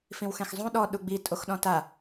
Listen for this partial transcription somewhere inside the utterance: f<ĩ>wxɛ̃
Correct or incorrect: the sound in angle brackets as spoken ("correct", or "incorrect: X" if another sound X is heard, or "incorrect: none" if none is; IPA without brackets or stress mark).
correct